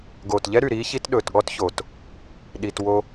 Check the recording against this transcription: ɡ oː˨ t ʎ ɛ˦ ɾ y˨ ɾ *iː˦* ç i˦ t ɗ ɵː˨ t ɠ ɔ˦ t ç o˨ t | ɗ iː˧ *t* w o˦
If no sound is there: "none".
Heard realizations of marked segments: iː˦, t

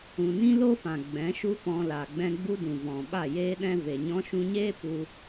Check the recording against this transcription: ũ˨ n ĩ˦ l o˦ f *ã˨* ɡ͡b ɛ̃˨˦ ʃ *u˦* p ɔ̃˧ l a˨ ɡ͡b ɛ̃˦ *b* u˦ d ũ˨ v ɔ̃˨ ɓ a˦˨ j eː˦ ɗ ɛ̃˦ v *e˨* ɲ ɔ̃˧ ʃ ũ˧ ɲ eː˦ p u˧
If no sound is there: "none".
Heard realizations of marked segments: ã˨, u˦, ɡ͡b, e˨

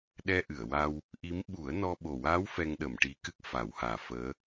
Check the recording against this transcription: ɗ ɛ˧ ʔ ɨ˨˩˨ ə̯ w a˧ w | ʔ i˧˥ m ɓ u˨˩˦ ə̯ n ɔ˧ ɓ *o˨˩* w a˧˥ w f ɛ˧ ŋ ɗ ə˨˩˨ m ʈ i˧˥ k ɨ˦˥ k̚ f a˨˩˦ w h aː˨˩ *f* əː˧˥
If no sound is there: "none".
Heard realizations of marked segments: o˨˩, f

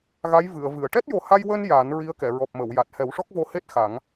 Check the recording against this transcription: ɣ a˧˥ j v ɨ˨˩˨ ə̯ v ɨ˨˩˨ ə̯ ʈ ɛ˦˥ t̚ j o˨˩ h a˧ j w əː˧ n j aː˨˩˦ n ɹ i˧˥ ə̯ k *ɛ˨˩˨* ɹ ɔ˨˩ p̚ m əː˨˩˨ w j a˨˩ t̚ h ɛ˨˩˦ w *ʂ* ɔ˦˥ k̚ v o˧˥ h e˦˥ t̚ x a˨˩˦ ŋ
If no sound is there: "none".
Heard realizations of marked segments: ɛ˨˩˨, ʂ

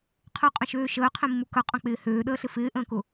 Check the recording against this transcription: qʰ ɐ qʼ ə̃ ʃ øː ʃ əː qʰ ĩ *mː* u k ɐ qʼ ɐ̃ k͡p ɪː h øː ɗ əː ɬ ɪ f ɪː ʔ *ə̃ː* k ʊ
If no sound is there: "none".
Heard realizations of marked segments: mː, ə̃ː

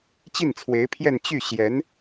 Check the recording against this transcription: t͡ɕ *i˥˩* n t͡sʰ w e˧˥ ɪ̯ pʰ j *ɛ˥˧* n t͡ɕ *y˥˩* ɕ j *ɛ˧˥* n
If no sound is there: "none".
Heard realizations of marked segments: i˥˩, ɛ˥˧, y˥˩, ɛ˧˥

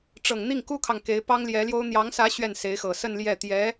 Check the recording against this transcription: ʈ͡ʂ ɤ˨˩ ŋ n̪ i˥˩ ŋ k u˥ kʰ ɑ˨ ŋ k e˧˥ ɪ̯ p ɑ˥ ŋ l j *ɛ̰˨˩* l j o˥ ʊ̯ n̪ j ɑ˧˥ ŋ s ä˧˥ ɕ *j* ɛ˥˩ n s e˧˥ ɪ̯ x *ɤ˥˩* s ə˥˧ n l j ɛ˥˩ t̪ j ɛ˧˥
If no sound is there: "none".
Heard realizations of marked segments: ɛ˧˥, ɥ, ɤ˨˩

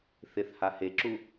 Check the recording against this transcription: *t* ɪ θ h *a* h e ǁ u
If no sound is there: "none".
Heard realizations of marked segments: θ, a

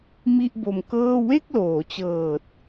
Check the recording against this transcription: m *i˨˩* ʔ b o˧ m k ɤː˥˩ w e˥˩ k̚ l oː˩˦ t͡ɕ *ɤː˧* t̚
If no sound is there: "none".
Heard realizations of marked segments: i˥˩, ɤː˨˩

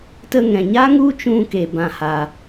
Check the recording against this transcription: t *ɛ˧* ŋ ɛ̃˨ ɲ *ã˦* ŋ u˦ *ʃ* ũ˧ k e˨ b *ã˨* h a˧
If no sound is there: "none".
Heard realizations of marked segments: ə˧, a˦, t͡ʃ, ã˧

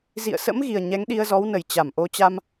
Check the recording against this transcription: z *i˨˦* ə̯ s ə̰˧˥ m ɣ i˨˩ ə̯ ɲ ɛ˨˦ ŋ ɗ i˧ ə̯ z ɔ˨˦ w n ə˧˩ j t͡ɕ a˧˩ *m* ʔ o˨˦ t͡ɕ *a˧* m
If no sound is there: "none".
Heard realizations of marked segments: ḭ˧˨, m, a˧

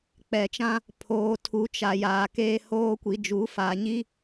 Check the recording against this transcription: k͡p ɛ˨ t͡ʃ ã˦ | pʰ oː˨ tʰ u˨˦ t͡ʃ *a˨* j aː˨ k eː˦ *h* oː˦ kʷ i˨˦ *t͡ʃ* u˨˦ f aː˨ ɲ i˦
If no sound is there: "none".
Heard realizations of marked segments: a˨, h, d͡ʒ

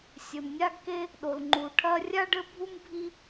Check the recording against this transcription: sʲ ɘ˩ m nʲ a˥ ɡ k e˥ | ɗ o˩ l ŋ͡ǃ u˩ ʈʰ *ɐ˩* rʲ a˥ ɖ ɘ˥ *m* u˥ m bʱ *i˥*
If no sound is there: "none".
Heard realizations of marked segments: ɐ˥, bʱ, i˥

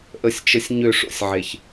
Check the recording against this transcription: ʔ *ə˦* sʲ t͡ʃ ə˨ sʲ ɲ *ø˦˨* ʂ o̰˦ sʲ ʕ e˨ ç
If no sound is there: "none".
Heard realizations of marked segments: ə˨, ø˦˨

